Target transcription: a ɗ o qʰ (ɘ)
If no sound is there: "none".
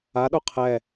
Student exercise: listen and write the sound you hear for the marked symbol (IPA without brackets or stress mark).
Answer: ɛ